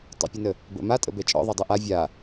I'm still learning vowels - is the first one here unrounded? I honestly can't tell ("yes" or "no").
yes